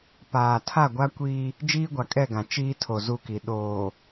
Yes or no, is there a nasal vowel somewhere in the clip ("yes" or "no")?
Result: yes